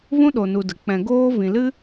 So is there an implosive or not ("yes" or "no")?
yes